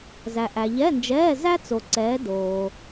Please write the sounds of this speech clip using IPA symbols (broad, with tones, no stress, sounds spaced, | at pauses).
z æ˨ ʔ æ˨ ʎ ɛ˧˥˧ n d͡ʒ ɛː˧˥˧ z æ˥ t͡s o˨ ǀ ɛː˨˦ d oː˨